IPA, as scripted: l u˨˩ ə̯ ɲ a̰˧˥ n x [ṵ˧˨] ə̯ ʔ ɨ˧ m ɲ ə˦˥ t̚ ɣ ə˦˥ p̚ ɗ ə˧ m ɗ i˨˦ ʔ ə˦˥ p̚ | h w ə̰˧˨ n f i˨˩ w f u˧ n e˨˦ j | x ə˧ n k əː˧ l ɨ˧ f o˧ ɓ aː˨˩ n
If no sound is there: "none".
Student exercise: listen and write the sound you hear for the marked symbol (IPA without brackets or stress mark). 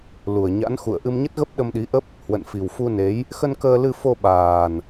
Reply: ṵ˧˨